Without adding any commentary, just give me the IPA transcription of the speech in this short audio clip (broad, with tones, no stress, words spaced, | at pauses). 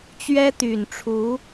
t͡ɕɥɛ˥t̪y˨˩nʈ͡ʂʰu˧˥